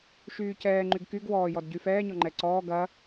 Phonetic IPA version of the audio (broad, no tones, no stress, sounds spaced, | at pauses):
ʃ yː c ɛː ŋ͡ǃ y ɡ k y ɡ w ɔː j ɔ d ɟ y f ɛː ɲ ɔ ŋ͡ǃ ɛ ǀ ɔː ɡ ɐ